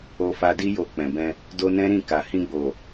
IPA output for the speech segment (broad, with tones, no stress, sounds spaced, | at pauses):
o˧ f a˧ d i˦ j o˧ k͡p ɛ̃˨ b ɛ̃˧ | d o˧ n ɛ̃˦ ɾ ĩ˦˨ k a˨ h ĩ˧ ɡ͡b o˨